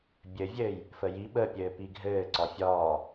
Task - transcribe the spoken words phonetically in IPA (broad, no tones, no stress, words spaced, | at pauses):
bʲɘvʲɘːj | fəji ɓəpʲɘː piɡʱɘːǀɒ fʲɒː